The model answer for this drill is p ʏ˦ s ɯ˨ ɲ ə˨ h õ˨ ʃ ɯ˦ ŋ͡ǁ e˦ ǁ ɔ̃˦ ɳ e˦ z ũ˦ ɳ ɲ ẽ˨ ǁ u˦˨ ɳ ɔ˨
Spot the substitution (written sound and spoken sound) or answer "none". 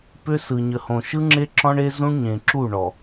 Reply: none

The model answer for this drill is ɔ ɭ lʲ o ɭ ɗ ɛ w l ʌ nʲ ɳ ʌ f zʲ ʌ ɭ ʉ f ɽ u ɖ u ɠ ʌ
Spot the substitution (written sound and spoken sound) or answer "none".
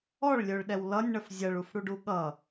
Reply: ʉ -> u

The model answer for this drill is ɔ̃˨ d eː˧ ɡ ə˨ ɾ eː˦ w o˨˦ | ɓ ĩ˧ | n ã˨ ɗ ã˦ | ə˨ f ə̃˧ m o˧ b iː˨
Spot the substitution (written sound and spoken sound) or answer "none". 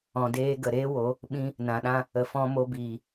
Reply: ə̃˧ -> ɔ̃˧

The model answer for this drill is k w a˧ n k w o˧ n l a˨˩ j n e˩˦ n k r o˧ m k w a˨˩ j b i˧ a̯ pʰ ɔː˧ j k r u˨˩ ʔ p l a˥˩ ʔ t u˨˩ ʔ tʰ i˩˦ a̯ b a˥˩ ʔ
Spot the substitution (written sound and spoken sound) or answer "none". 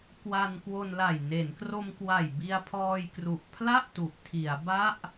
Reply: p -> pʰ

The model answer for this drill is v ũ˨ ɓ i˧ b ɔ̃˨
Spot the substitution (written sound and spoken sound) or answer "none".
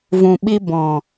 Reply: none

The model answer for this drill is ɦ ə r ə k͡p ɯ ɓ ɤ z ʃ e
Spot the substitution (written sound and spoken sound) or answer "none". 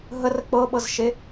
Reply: ɯ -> ɤ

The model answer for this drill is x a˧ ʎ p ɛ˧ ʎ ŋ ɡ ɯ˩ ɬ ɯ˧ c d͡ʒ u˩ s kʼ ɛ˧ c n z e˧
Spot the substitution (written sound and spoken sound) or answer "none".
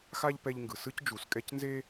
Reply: ɬ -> s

